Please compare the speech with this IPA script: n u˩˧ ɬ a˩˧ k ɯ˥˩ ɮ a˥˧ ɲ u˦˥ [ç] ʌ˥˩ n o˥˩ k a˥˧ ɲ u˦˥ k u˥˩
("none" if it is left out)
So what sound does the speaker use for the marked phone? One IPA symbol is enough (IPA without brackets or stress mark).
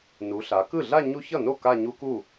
ç